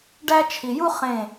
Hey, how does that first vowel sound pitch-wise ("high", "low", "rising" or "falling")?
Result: high